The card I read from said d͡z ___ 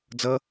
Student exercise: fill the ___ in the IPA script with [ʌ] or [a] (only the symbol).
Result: ʌ